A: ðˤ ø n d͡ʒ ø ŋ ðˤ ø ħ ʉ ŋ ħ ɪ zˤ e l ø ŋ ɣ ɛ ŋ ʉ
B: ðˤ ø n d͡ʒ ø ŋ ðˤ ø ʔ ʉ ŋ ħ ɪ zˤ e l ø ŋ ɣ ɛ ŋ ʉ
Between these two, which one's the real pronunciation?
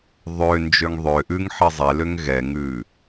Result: B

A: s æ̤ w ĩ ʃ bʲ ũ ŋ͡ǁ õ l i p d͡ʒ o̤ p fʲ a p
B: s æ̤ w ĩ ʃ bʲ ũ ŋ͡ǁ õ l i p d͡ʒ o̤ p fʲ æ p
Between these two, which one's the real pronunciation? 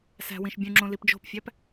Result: B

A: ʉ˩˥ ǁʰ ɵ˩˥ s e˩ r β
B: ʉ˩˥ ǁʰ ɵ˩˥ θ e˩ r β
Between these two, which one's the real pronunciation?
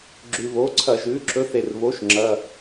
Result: B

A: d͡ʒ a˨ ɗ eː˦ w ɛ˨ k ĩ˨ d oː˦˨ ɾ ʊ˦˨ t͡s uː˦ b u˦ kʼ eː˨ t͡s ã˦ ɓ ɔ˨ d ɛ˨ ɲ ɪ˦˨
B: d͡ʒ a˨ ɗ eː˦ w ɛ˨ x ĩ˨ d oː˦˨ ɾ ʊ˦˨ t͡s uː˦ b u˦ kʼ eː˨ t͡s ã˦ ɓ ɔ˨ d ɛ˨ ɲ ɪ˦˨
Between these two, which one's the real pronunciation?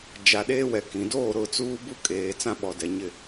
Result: A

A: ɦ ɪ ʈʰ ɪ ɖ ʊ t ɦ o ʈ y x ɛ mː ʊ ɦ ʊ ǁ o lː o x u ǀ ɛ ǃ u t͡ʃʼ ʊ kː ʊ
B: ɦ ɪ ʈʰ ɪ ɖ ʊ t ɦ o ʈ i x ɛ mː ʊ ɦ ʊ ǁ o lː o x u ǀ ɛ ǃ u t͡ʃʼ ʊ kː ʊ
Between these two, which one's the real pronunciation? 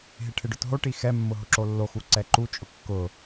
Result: B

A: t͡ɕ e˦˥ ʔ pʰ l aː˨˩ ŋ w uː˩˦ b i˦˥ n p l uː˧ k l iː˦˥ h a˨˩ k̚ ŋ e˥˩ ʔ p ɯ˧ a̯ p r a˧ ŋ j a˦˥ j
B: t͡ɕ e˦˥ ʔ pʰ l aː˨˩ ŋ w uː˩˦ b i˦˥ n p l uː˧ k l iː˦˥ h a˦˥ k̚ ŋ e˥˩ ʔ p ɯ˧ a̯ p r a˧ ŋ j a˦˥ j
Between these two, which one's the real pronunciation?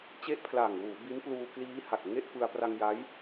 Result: A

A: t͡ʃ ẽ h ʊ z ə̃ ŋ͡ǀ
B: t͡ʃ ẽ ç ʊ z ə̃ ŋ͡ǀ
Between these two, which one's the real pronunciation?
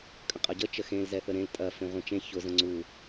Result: B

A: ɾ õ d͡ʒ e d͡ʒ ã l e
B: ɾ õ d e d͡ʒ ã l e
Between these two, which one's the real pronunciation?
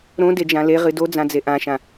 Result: B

